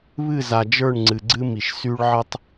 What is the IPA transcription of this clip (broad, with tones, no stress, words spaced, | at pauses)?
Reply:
βɨ˦˨za˨d͡ʒə˞˦˨ɳ ŋ͡ǀɨ˨ɡ͡ǀɨ˦mi˨ʃ sy˦ɭʕɨ˦tˤ